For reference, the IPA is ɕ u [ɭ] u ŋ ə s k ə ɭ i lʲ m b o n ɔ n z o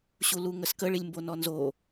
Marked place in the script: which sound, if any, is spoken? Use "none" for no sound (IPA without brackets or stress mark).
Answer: l